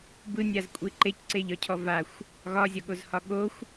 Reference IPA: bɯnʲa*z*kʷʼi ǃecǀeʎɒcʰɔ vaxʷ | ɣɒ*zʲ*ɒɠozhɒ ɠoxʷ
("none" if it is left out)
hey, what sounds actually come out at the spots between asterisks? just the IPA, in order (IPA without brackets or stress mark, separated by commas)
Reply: z, zʲ